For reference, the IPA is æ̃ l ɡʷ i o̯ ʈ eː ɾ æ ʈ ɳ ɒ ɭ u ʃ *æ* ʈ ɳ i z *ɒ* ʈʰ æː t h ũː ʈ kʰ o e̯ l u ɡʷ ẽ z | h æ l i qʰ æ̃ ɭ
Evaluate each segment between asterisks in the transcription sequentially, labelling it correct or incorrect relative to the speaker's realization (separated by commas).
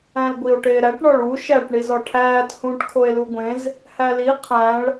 correct, correct